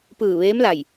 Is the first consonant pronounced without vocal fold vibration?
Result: yes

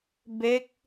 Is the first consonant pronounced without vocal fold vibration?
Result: no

